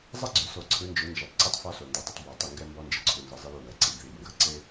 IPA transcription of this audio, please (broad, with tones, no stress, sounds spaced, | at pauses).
zˤ ɐ˦ ɡ͡ǀ ʏ˨ s o˨ ǀʰ ɯ˨˦ n d͡ʒ ʏ˨˦ n d͡ʒ ɔ˨ tˤ ǀ u˦ tˤ f ɔ˦ s o˨ n d ɔ˨ dˤ ə˦ tˤ b ɔ˨ tˤ ʏ˦˨ ŋ ɡ ɛ˦ m b ɔ˦ n d͡ʒ ɪ˨ ǀʰ u˨ n z ə˨ zˤ ɪ˦ l u˦˨ w ɛ˨ ǀ i˨ b ð i˨ b ŋ ɡ ɐ˨ ǀ ɪ˦